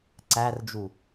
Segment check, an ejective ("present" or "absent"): absent